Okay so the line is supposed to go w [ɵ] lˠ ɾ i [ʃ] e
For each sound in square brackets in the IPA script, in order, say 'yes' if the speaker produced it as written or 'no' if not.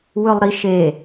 yes, yes

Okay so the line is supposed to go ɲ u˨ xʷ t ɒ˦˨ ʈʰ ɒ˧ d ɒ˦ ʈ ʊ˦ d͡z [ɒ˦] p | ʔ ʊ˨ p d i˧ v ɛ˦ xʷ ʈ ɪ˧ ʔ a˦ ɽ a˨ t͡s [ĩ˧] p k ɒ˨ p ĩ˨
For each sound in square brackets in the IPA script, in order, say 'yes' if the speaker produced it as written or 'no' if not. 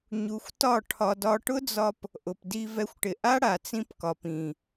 no, yes

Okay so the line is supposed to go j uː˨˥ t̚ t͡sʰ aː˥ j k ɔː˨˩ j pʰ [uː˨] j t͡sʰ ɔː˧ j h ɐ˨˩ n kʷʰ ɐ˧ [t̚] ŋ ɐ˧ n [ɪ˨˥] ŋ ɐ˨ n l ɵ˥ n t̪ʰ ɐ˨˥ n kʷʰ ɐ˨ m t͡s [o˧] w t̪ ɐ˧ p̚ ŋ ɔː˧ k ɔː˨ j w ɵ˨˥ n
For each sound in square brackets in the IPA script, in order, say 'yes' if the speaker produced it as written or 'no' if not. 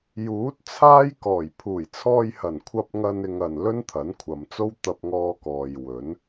no, no, no, no

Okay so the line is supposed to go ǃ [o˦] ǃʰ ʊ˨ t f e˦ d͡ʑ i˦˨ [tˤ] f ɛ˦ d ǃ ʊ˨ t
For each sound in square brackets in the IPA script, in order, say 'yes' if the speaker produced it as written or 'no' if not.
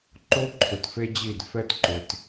yes, no

